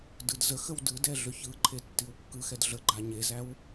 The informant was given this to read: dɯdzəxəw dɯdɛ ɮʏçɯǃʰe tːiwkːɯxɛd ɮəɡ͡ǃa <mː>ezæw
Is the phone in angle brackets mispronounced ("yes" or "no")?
yes